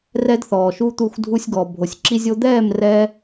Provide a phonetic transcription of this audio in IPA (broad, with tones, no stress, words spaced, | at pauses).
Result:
rɛ˦dθɔː˨ʃu˦t̪u˦˨x dʱu˧sʲɡɔ˨ bʱo˨sʲǁi˦zʲo˦ d̪ɛː˦˨mrɛ˧